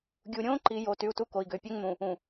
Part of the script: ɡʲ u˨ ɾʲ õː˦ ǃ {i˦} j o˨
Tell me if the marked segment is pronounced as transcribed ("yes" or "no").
no